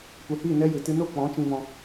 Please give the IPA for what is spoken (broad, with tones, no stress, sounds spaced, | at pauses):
kʷ ɛ˨ h iː˦˨ n ɛ˦ j ɨ˨ t ɨ˧ n o˦˨ k͡p ɔ̃˨˦ t͡ʃ ĩ˧ v ɔ̃˧